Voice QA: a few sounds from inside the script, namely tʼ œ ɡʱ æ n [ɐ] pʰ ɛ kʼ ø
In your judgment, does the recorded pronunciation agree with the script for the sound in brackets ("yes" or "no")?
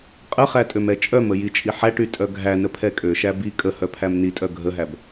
no